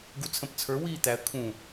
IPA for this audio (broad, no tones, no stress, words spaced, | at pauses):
ɡut͡sʰə̃p t͡sʰə˞wiː t̪æə̯ kʰũ